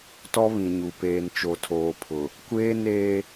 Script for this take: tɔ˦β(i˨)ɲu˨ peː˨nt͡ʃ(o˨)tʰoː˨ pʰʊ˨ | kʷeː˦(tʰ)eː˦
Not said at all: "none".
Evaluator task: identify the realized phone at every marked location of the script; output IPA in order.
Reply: ĩ˨, o˨, n

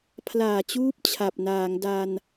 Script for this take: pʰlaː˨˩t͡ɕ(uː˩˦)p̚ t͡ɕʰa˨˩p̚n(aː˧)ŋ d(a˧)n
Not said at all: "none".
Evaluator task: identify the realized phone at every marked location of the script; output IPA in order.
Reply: uː˦˥, aː˩˦, a˧

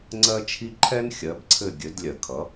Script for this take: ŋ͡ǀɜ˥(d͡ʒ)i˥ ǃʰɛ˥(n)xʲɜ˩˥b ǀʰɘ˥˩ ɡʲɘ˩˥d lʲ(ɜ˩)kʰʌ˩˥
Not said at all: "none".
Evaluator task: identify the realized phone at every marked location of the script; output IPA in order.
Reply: t͡ʃʰ, n, ɜ˩

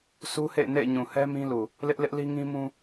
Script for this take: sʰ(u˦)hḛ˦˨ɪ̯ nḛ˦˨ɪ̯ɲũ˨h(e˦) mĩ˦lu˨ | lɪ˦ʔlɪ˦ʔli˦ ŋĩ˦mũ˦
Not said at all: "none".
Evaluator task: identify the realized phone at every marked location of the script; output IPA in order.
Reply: u˦, ɛ˦

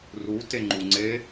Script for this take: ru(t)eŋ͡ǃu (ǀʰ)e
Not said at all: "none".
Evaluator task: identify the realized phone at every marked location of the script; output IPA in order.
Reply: t, ŋ͡ǀ

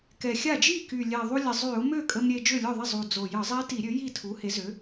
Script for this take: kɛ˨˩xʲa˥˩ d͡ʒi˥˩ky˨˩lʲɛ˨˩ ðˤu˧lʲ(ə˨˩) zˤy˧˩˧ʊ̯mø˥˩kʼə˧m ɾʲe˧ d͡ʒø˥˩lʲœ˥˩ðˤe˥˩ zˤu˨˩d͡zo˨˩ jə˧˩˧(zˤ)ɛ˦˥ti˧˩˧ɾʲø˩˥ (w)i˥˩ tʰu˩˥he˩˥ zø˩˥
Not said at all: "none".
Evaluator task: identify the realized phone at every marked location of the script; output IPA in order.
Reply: ə˨˩, zˤ, j

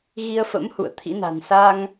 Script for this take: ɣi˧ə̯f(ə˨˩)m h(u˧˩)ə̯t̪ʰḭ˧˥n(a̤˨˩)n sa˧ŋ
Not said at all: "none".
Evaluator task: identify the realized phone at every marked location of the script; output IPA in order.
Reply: ə̰˧˥, ṵ˧˨, a̤˨˩

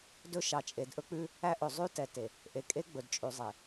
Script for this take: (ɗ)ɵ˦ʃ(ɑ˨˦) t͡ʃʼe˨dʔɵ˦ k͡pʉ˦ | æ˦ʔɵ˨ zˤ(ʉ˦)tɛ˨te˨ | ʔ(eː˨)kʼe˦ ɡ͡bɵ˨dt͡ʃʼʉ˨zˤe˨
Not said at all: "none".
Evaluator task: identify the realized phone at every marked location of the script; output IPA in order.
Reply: d, ɑ˨˦, ʉ˦, e˨

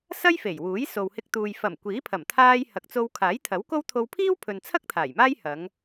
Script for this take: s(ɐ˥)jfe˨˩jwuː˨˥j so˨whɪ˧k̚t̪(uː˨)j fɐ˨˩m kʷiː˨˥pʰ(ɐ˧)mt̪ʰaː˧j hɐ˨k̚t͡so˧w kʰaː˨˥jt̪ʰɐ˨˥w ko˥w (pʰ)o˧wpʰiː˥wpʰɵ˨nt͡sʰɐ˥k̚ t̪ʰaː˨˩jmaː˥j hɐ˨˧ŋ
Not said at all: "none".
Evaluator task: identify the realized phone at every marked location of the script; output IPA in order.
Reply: ɐ˥, uː˨, ɐ˨˩, t̪ʰ

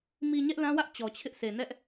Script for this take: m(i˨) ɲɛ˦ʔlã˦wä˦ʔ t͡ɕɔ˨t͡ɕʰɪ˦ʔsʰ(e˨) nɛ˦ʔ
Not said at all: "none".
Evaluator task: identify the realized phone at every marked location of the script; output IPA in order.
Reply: i˨, e˨

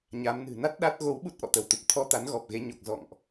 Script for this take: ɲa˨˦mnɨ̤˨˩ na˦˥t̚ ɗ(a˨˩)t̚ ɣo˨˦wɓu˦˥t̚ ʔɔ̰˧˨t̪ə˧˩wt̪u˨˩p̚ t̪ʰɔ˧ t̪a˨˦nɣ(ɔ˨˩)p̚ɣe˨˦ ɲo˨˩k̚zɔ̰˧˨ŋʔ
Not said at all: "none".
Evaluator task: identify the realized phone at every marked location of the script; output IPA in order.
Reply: a˦˥, ɔ˨˩

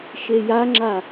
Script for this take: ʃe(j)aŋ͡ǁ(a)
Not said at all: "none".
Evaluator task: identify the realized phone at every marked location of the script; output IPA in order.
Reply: j, a

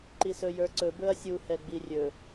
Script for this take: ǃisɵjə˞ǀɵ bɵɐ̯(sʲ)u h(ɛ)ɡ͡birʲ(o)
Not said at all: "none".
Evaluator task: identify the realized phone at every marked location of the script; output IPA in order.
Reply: sʲ, ɛ, ɵ

